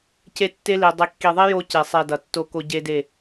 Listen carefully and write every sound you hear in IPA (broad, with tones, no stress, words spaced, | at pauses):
ce˦tːe˦li˨ dˤi˨kːi˨ðˤi˦ jo˦ce˨ sˤe˨ dʌ˨tːo˦ ko˦ɟe˦de˦˨